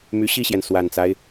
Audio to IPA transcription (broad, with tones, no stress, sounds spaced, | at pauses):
m y˧˥ ɕ i˥˩ ɕ j ɛ˩ n s w a˨˩ n t͡s a˦ ɪ̯